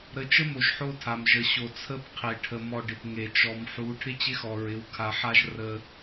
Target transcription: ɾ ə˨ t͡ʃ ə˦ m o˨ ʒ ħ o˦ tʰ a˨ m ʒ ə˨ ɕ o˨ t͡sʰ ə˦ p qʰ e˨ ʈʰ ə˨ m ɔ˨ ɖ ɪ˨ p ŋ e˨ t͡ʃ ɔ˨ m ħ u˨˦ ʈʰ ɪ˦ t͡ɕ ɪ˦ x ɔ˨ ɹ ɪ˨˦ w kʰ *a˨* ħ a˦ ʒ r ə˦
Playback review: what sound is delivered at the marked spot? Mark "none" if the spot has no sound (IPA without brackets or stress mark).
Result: a˨